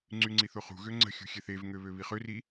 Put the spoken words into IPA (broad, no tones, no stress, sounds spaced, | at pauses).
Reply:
ŋ͡ǀ y ŋ͡ǀ i θ o χ ṳ ɣ ø ŋ͡ǀ ə̤ xʲ ṳ xʲ ɛ θ e v ŋ ø β ø β i χ ø r i